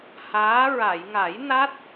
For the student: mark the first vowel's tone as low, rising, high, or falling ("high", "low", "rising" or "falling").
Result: rising